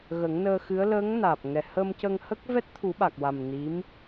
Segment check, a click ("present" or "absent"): absent